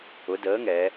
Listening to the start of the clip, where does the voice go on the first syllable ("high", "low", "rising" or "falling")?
rising